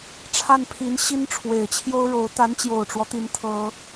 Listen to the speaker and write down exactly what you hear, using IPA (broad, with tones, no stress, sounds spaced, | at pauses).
ʈ͡ʂʰ a˥˩ n pʰ i˧˥ n ɕ i˥ n ʈ͡ʂʰ w e˨˩ ɪ̯ t͡ɕʰ j o˥ ʊ̯ ɻ o˧˥ ʊ̯ t̪ a˧˥ n t͡ɕ j o˨˩ ʊ̯ ʈ͡ʂ w ɔ˦ t̪ i˧˥ n t̪ʰ ɤ˥